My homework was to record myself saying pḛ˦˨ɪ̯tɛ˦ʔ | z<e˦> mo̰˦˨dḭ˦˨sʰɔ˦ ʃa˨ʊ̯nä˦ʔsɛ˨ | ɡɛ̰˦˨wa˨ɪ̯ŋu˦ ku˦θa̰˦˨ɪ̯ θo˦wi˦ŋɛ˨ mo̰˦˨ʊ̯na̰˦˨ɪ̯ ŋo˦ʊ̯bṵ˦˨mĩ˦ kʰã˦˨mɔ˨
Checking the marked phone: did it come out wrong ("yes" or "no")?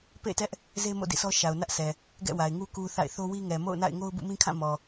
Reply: no